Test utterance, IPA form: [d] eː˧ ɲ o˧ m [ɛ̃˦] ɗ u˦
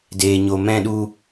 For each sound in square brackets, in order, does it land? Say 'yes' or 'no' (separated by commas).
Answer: yes, yes